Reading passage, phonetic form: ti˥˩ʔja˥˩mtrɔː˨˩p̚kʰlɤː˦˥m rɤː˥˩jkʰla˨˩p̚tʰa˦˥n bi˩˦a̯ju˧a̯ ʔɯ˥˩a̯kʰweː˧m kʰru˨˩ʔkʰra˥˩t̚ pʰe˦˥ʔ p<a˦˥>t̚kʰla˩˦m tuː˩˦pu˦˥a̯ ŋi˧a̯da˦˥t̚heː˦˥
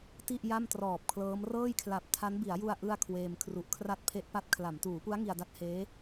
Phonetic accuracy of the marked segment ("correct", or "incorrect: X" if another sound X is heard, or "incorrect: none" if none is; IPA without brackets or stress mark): correct